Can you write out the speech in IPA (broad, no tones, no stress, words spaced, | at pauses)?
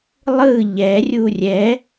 lˠɯ ʎɛ rʲurʲɛ